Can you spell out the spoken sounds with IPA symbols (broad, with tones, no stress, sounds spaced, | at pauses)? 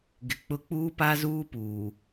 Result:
ɡ ɪ˨ k͡p ʊ˦ k͡p uː˦ p a˦ z uː˦ p uː˨